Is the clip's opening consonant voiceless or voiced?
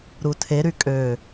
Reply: voiced